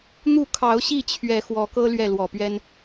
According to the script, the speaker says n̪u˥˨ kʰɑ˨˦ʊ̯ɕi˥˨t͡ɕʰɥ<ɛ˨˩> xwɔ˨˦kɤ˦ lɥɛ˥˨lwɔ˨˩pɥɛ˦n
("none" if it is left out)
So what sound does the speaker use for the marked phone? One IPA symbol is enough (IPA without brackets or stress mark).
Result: ɛ˨˩